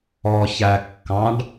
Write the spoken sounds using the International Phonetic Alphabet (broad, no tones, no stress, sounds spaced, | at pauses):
ɔ ç æ kː ɑ̃ ɖ